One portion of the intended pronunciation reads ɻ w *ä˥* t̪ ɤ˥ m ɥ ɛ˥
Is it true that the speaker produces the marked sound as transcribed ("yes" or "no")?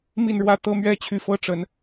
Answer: no